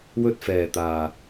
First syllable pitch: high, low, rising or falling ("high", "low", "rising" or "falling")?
high